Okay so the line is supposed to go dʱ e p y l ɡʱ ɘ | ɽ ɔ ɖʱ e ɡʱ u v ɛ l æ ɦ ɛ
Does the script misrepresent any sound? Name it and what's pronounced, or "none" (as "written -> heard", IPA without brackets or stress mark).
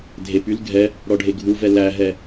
ɘ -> ɛ